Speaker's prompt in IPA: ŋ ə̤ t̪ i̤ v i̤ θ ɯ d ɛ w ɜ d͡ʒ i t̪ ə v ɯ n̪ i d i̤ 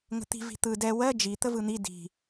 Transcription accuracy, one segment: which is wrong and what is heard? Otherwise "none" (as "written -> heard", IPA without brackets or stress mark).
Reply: θ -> t̪